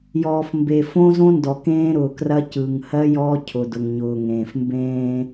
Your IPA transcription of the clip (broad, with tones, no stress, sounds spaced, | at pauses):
j ɔː˨ f m b e˨ f õ˦ z õ˦ n d ɔ˨ k ẽː˦ ɾ ʊː˨ k r ɐ˦ c ɯ˨ ŋ h ɜ˦ j ɔː˦ cʰ ʊ˨ d ʊ˨ ŋ ɲ ʊː˨ ŋ ẽː˨ f m b ẽː˦